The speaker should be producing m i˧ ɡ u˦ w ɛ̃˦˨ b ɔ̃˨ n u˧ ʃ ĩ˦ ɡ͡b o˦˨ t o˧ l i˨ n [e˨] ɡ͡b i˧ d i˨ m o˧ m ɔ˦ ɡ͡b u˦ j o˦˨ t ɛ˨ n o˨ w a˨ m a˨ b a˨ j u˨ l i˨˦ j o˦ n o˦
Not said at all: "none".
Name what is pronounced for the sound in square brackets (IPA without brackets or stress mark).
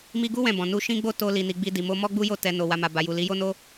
i˨